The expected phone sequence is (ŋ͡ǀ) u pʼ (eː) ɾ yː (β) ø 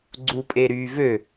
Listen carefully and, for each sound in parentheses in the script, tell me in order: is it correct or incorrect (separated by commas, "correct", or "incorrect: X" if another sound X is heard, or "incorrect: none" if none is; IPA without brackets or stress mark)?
incorrect: ɡ͡ǀ, incorrect: e, incorrect: v